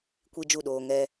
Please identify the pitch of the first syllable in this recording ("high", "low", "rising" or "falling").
high